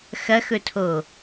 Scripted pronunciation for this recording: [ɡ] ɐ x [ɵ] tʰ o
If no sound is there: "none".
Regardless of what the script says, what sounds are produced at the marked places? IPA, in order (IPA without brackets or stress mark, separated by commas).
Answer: x, ɵ